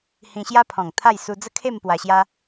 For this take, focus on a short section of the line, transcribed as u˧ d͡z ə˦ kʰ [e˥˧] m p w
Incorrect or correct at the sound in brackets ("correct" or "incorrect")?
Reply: correct